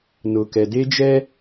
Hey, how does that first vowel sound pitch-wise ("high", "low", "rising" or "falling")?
low